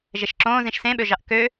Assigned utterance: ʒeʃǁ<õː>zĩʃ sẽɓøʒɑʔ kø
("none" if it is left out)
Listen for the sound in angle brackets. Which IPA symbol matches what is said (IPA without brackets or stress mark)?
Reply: õː